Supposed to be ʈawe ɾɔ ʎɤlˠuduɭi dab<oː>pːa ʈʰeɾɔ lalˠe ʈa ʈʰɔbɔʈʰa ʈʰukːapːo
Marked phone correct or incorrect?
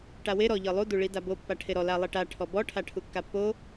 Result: incorrect